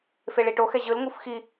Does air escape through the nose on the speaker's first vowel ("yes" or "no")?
no